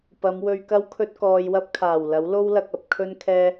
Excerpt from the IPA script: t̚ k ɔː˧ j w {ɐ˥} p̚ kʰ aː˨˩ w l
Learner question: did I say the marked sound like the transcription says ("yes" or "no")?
yes